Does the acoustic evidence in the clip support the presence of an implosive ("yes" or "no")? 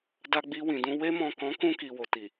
no